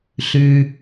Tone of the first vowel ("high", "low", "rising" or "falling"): low